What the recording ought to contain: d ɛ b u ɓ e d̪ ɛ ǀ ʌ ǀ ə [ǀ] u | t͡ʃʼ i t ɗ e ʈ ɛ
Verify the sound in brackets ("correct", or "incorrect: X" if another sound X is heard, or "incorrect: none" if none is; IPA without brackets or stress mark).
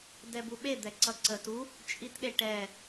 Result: incorrect: t